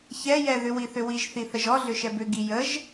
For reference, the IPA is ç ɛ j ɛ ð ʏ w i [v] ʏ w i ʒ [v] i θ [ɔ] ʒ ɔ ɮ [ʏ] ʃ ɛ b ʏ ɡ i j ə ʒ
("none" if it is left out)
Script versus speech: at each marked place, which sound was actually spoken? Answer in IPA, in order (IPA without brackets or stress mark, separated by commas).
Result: θ, θ, ə, ʏ